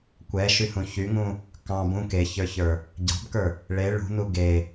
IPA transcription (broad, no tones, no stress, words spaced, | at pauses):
kʷɛʃyhũ çyŋũ | kɑ̃ bũ keçə˞çə˞ | ɟɑ̤bkə˞ | ɭe ɭṳnu ɡe